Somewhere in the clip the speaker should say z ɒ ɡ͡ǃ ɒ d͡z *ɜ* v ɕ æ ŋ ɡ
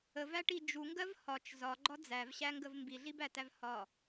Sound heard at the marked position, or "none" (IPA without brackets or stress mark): æ